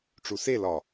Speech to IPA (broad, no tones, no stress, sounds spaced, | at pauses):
ʈ͡ʂ u s e l ɒ